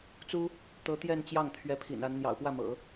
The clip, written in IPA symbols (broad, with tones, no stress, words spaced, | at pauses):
t͡su˥ | t̪ɤ˧˥t̪jɛ˥˧nt͡ɕjɑ˥˩ŋ t̪ʰɥɛ˧˥pʰḭ˨˩na˧˥n n̪jɑ̰˨˩ʊ̯pwä˥˩mɤ̰˨˩˦